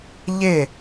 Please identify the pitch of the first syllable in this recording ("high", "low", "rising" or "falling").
falling